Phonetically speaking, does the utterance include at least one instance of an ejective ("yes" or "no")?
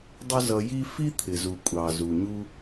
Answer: yes